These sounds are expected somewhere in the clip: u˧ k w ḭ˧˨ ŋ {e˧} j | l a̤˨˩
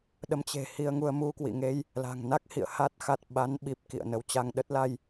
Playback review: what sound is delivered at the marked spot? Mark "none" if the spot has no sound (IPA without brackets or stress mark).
e˧